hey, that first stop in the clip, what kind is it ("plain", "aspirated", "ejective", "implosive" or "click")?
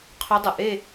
aspirated